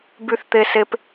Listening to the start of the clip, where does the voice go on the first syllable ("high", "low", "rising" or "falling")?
high